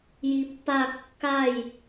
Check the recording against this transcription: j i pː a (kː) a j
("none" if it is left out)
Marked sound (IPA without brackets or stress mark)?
kː